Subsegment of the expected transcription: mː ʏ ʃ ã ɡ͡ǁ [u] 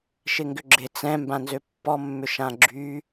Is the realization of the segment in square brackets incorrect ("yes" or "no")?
yes